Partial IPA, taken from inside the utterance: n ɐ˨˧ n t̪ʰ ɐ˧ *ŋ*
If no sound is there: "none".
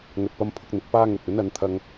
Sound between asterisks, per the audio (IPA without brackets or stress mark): ŋ